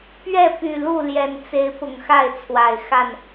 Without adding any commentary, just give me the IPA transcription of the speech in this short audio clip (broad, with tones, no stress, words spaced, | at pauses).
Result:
pɥɛ˥˨py˨˩ lu˥˨ljɛ˨˩nt͡se˨˦ɪ̯ pʊ˨˩ŋxa˥˨ɪ̯t͡sʰwa˨˩ɪ̯xa˥˨n